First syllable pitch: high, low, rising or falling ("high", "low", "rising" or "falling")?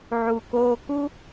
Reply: low